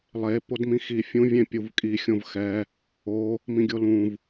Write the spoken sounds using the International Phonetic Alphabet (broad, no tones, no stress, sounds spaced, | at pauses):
lˠ e p o d m ĩ x i fʲ ũ vʲ ẽ pʲ u v kʼ i xʲ õ v x ɛ | o | m ĩ ɡʲ o l ũ v